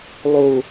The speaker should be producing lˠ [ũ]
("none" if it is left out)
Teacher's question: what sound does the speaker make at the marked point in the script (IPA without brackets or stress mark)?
u